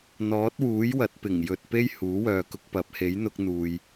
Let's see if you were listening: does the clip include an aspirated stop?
no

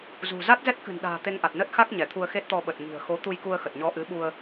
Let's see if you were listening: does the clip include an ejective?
no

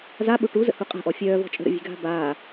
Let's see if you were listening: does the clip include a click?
no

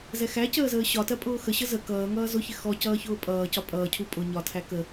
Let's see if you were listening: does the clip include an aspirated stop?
yes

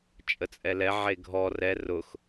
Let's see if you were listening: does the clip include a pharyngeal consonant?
yes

